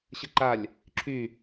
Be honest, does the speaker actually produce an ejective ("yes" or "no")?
no